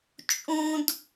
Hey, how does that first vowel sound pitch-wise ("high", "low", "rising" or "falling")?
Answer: high